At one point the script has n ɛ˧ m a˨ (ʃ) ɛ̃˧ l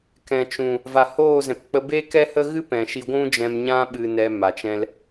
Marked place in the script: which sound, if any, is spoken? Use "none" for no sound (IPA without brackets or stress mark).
t͡ʃ